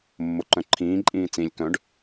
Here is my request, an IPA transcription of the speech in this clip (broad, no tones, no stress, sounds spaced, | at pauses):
mː o ǃ œ̃ ǃʰ ĩː ǃʼ ĩː t͡s ĩ lʲ k œ̃ ɖ